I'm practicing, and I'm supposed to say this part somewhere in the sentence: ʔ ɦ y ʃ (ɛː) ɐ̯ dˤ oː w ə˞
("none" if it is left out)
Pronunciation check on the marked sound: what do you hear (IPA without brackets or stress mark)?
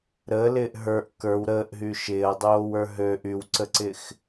ɪː